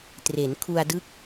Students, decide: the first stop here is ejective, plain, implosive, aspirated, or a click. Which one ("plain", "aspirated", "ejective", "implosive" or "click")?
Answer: plain